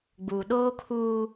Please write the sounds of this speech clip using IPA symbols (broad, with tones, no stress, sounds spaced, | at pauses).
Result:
ɡ͡b uː˨ ɗ oː˦ kʰ uː˦